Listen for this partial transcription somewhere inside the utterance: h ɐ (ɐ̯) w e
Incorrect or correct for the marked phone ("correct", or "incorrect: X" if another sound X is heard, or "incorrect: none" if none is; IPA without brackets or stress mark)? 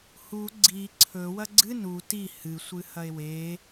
incorrect: e̯